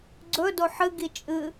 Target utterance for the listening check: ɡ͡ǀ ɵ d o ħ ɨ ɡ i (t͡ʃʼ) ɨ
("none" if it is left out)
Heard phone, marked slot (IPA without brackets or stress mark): t͡ʃʼ